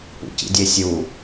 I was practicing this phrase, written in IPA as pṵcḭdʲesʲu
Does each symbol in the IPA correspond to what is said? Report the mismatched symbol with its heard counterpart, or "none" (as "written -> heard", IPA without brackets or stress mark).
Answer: none